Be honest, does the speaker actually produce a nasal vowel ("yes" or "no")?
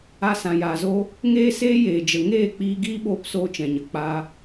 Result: yes